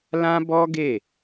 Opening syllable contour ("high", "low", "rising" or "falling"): high